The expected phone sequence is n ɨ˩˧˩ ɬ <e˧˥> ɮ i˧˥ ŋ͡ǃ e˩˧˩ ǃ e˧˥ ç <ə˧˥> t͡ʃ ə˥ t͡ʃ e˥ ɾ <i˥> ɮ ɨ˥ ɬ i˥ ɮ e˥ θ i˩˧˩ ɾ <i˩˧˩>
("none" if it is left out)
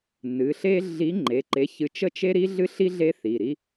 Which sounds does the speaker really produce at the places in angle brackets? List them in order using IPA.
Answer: e˥, ɨ˧˥, i˥, i˥

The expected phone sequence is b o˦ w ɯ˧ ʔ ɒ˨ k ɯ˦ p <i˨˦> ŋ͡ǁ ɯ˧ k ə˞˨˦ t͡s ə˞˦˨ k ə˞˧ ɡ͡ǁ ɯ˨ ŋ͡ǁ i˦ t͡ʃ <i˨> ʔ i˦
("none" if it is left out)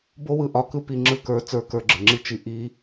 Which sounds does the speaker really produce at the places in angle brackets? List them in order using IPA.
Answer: i˧, i˧

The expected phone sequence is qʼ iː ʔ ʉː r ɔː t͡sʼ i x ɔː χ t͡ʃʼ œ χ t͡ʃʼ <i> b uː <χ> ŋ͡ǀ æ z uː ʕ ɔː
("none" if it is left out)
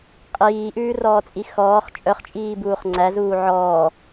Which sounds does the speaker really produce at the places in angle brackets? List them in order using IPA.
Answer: iː, χ

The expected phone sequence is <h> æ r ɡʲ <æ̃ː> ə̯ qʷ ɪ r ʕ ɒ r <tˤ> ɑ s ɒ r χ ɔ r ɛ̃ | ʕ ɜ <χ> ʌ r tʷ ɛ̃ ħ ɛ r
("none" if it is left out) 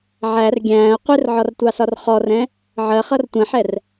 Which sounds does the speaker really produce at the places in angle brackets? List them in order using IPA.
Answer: ʕ, æ̃ː, tʷ, χ

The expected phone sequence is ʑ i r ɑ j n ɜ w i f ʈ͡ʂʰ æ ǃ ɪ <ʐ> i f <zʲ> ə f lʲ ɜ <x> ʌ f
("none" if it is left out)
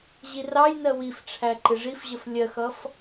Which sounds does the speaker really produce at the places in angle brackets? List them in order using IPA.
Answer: ʐ, ʑ, x

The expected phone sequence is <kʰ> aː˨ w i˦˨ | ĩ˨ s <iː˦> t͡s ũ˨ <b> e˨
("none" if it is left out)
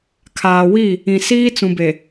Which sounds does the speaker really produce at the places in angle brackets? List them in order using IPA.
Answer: kʰ, iː˦, b

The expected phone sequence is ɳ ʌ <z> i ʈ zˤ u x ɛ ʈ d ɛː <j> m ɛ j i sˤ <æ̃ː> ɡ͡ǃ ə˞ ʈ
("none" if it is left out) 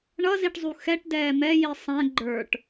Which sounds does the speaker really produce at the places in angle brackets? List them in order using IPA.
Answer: z, none, æ̃

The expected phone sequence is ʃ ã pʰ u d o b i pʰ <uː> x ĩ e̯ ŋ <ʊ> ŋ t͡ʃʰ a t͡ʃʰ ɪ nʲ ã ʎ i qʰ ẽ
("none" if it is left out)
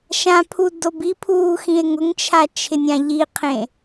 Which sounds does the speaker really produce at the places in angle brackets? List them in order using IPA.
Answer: uː, ʊ

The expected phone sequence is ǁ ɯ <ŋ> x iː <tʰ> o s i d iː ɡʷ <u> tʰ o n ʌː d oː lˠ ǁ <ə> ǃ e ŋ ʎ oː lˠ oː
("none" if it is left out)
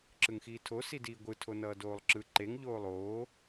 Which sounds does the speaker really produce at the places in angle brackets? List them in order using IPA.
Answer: ŋ, tʰ, ɯ, ɯ

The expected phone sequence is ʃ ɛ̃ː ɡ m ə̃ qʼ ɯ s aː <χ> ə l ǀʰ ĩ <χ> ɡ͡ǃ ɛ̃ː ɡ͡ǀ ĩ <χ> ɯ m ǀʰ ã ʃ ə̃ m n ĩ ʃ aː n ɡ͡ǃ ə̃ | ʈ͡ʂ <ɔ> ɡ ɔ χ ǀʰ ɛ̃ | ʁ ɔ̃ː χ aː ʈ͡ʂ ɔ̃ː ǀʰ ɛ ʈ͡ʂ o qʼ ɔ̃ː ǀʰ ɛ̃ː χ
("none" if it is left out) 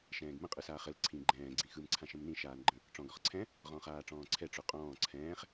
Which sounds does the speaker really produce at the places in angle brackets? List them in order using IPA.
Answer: χ, none, x, ɔ̃

